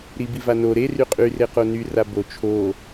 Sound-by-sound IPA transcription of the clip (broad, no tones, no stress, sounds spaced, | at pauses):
ɾ i b i v a n o ɾ e r y qʼ y r e q o n y r a b o t͡ʃʰ o